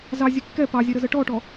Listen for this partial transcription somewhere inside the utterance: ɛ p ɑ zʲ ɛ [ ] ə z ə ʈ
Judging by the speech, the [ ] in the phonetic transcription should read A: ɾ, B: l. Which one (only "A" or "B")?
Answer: A